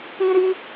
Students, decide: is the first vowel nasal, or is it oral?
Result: nasal